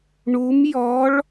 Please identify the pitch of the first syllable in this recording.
rising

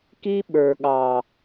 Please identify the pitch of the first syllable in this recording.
high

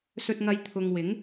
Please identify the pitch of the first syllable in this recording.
low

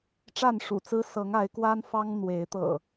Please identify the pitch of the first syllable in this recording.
falling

